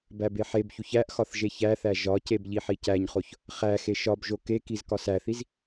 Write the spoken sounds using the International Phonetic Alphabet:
b æ b e ħ e b ç u ç æ ʔ x ɒ θ ʒ e ç æ θ æ ʒ ɒ c e b ʎ i ħ i c æ ɲ χ o ç | χ æ x e ʃ ɒ b ʒ o k e k i z k ɒ s æ θ i z

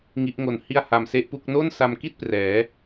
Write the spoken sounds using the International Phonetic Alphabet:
ŋ i˦˥ ʔ ŋ o˧ n h i˥˩ a̯ h a˧ m s e˥˩ ʔ p u˥˩ k̚ n o˥˩ n s a˧ m k i˥˩ t̚ p r ɛː˩˦

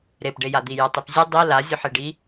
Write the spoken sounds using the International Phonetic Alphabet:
ɾ e p ɖ e j a d̪ i j ə tˤ i p zʲ ɨ dˤ i l a zʲ ɵ ħ e ɖ i

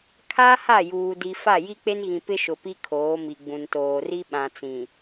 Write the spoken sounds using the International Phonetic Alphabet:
kʰ a˦ h a˦˨ j uː˨ d i˨ f a˦˨ j i˦ k͡p e˦ n ɣ ĩ˨ p ɪ˦ ʃ ʊ˨ p i˦ kʰ oː˨˦ m i˨ ɡ͡b ũ˨ n t oː˨ r i˦ ɓ ã˨ t͡s ĩ˨

